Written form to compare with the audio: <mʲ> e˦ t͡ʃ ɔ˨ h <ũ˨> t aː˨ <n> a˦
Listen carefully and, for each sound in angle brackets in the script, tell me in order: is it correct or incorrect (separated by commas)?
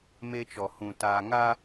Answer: incorrect, correct, incorrect